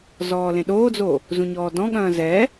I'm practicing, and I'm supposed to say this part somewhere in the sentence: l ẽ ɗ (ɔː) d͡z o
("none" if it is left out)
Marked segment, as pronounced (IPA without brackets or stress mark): oː